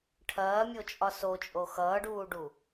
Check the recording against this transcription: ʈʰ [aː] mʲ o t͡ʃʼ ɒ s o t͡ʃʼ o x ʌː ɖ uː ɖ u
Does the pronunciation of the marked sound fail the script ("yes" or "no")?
yes